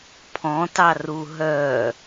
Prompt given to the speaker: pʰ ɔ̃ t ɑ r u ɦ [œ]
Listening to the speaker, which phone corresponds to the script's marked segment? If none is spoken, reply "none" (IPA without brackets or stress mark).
œ